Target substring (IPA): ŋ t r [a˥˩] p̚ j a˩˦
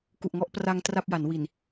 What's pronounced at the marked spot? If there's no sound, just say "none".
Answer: a˥˩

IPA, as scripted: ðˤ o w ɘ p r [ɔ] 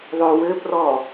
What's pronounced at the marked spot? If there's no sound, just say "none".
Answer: ɔ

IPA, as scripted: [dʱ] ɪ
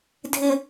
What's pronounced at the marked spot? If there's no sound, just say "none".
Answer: dʱ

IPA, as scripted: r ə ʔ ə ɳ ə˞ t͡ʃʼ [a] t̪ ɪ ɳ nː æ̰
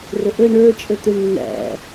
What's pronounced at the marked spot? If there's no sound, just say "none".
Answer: ə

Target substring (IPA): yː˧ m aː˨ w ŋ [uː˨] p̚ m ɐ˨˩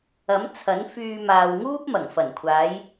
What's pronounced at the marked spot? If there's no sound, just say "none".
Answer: uː˥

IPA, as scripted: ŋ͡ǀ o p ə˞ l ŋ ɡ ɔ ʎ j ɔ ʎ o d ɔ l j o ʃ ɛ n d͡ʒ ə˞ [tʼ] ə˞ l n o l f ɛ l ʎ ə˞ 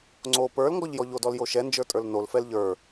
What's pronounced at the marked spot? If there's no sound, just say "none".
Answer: tʼ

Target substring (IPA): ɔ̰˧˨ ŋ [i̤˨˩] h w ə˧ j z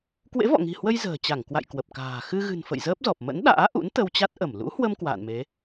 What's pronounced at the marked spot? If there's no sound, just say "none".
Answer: i̤˨˩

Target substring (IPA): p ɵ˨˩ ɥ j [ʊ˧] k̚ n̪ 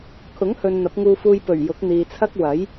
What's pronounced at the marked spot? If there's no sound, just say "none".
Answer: ʊ˨˥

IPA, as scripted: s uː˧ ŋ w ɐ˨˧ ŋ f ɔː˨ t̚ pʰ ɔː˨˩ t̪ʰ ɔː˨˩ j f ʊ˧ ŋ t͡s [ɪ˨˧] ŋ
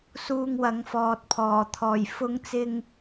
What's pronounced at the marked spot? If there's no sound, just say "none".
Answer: ɪ˧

